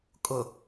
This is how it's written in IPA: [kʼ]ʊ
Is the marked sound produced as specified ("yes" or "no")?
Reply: yes